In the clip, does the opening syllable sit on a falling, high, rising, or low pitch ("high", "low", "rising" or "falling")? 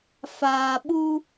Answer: low